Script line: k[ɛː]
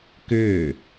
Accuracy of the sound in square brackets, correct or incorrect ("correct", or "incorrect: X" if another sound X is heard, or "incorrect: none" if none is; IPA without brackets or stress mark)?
incorrect: ʏː